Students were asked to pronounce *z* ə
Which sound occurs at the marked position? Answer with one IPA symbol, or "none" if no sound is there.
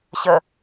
ɕ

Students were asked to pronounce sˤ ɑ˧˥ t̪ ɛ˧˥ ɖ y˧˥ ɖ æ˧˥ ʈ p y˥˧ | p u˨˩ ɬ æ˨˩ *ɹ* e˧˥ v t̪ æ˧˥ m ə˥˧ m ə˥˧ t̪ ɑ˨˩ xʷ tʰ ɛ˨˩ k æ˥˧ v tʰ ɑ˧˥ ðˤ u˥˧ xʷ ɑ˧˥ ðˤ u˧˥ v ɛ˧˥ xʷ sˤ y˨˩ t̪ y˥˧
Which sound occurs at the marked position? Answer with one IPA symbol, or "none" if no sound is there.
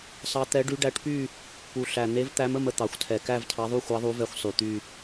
n̪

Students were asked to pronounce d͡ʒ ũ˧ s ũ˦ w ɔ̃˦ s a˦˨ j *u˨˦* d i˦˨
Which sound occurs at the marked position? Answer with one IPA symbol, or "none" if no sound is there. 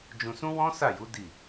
u˨˦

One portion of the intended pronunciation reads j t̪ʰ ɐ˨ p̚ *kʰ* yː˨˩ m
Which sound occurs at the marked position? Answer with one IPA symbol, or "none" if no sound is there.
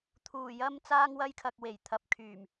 kʰ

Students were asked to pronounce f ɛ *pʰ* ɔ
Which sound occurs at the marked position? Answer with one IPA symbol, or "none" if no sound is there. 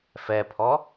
pʰ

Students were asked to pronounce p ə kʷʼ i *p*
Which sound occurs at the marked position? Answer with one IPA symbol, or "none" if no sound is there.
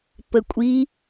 none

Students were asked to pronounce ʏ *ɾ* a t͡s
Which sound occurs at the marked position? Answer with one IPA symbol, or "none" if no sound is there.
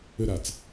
ɾ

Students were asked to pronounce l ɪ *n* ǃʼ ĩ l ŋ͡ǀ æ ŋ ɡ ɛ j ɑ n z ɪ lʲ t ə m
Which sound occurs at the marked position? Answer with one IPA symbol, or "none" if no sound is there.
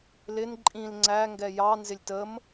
n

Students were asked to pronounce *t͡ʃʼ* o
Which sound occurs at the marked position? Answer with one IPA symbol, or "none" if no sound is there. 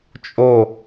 t͡ʃʼ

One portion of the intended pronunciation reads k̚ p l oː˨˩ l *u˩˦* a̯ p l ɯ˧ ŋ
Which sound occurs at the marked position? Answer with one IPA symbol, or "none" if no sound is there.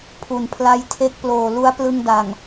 u˦˥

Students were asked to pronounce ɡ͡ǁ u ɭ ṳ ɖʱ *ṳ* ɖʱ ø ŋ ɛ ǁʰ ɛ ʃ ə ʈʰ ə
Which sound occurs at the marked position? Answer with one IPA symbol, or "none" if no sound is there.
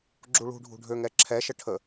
ṳ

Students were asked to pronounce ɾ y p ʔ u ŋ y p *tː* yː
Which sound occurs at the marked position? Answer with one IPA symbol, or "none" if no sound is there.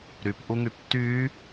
tː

